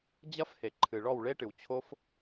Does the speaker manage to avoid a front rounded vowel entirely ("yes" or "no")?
yes